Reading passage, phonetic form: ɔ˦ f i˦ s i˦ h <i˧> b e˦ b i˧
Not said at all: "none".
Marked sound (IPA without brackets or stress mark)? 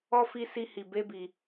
i˧